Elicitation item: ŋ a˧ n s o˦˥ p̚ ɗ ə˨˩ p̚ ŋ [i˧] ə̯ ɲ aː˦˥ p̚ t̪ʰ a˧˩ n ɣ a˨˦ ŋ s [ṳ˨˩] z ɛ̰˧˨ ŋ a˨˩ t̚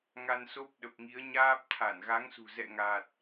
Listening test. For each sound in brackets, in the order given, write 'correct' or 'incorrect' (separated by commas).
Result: incorrect, correct